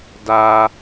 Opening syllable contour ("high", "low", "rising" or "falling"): high